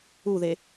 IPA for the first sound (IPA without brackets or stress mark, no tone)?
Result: u